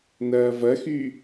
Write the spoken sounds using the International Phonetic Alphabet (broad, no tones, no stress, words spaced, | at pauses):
nɐːvɐxy